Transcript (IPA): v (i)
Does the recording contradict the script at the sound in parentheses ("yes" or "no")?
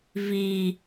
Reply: no